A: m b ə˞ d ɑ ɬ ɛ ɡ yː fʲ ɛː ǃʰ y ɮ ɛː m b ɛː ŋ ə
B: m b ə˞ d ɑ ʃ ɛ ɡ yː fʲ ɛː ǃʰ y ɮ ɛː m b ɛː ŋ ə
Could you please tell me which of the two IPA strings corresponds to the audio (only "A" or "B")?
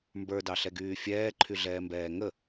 A